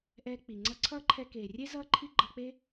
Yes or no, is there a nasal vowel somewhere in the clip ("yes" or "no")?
no